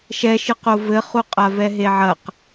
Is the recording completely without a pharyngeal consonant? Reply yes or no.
no